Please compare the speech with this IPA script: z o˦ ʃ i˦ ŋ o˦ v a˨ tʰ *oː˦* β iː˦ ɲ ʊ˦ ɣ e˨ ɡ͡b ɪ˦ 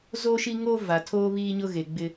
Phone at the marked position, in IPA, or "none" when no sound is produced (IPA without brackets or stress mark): oː˦